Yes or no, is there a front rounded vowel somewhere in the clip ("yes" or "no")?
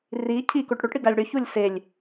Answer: yes